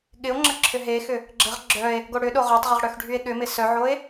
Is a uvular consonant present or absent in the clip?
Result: present